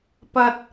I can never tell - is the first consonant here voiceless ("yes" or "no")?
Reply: yes